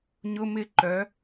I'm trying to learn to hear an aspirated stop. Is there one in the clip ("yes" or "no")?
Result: no